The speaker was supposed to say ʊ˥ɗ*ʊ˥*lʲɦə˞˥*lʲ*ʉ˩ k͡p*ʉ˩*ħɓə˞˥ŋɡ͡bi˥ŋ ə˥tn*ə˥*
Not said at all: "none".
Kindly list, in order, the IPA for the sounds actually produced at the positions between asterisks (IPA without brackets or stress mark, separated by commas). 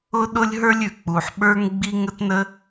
ʊ˥, lʲ, u˩, ə˥